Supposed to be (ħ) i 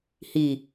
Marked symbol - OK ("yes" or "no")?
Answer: no